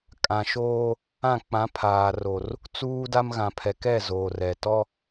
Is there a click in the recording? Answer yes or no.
no